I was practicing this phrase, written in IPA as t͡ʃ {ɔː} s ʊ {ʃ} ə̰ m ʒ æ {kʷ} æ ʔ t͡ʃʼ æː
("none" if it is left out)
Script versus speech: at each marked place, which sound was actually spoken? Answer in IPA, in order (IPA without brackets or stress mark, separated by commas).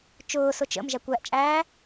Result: ʊː, t͡ʃ, kʷ